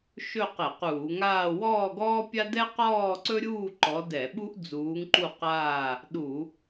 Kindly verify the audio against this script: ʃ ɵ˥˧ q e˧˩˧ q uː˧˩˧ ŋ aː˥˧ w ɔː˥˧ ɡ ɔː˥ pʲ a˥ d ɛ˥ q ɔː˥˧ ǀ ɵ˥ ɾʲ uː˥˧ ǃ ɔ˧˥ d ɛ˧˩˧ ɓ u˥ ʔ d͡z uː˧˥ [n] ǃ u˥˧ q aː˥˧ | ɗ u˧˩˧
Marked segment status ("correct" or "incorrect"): incorrect